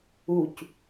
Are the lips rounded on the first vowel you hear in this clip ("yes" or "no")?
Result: yes